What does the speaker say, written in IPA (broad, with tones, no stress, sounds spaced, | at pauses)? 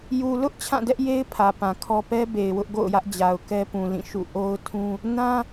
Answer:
j u˨ l ʊ˦ ʔ t͡ɕʰ ã˦˨ d ɛ˦ ʔ j e˦ ɪ̯ pʰ ä˨ p ã˨ kʰ ɔ˦ p ɛ˦ b e˨ ɪ̯ w ʊ˦ ʔ ɡ o̰˦˨ ʊ̯ j ä˦ ʔ d͡ʑ a˨ ʊ̯ k ɛ˦ p ũ˨ l ĩ˦˨ ʃ ṵ˦˨ ʔ o˦ ʊ̯ tʰ ũ˦ | n ã˦